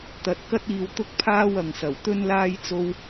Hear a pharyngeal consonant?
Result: no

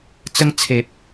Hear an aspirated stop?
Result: yes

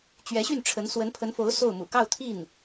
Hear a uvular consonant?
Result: no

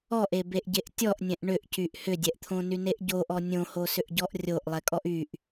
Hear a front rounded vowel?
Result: yes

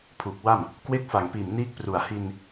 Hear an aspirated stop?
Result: yes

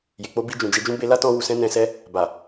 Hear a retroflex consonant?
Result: no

